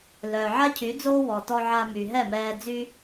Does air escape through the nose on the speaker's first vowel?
no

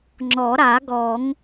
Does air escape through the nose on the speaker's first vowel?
no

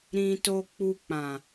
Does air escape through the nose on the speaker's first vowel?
yes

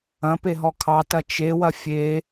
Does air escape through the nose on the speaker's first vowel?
yes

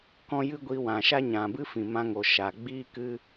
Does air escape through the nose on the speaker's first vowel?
yes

